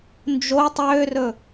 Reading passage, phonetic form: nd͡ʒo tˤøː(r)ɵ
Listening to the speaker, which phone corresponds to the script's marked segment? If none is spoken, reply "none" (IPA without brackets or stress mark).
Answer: r